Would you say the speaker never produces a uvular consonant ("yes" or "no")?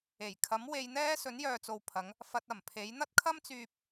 yes